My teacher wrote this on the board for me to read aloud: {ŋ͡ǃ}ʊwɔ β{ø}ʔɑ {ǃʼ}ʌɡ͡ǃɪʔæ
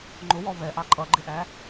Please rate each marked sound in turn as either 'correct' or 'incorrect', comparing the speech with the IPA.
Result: correct, incorrect: ɛ, correct

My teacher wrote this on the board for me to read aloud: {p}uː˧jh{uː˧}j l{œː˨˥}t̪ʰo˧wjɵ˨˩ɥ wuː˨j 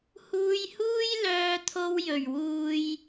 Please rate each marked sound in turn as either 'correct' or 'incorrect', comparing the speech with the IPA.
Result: incorrect: h, incorrect: uː˥, incorrect: œː˧

